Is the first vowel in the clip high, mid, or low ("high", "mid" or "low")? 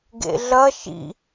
mid